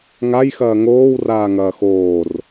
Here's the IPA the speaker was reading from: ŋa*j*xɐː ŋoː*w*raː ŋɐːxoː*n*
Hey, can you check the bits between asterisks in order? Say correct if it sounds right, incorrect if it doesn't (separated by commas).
correct, correct, incorrect